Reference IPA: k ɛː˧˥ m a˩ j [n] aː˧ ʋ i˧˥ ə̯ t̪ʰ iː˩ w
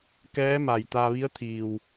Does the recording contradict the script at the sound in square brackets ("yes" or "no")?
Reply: yes